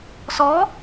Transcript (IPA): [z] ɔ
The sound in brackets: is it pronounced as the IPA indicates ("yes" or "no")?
no